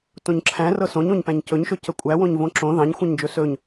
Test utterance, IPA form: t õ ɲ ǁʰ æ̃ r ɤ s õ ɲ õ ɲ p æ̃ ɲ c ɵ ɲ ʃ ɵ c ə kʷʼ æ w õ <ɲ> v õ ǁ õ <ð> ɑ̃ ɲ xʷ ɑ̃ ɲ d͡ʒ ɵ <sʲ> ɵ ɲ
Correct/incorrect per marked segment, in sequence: correct, correct, incorrect: s

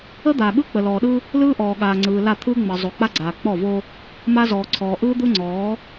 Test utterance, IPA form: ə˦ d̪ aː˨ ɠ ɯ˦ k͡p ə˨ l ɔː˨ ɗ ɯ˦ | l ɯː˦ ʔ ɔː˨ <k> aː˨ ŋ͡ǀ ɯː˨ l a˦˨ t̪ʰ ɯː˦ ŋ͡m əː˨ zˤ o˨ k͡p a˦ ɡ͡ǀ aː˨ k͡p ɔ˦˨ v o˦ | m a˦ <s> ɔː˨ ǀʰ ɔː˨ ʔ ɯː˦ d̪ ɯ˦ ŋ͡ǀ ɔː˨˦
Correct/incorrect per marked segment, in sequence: incorrect: ɠ, incorrect: z

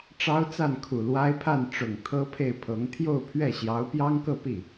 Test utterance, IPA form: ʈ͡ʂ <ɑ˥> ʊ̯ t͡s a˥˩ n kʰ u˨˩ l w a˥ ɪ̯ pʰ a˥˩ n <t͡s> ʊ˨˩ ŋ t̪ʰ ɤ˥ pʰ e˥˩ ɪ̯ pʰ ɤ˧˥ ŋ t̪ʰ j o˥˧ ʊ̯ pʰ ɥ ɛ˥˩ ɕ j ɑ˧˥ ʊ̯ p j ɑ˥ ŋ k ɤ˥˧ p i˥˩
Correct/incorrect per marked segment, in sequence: correct, incorrect: ʈ͡ʂ

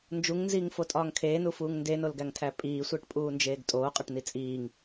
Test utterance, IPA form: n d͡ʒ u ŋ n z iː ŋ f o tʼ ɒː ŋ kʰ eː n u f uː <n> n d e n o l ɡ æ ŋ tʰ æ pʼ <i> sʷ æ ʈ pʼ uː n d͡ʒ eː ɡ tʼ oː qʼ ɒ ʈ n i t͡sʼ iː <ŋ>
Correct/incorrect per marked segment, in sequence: incorrect: ŋ, incorrect: iː, correct

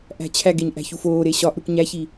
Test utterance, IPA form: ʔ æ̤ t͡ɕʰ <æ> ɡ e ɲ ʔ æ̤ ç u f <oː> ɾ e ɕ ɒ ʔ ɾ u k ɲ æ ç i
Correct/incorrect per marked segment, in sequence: correct, correct

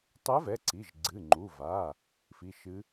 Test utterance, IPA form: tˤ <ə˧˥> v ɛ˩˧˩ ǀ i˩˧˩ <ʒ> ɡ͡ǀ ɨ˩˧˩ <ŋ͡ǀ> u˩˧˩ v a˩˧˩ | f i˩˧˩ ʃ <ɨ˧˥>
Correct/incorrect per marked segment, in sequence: incorrect: ɛ˧˥, correct, incorrect: ŋ͡ǃ, correct

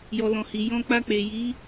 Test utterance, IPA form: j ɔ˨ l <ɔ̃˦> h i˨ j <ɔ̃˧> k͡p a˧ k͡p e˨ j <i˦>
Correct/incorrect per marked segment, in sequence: incorrect: ɔ̃˨, correct, incorrect: i˨˦

